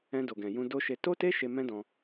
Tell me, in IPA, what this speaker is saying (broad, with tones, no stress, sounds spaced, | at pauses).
ɛ̃˧ d o˨ ɡ ɛ̃˨ j ũ˧ d o˦ ʃ e˧ t o˦ t e˦ ʃ e˧ m ɛ̃˦ d ɔ̃˧